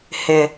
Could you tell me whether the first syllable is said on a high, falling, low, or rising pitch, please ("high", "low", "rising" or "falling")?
low